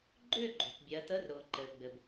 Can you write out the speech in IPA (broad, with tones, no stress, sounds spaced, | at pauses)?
ɡ͡ǃ ʏː˥˨ ɡ͡ǃ o̤˩ t bʲ ɜ˩˧ t ə˧˥˧ r ɾ ʊː˩ ǃ ɘ˩ ɡ͡b ɘ˩ b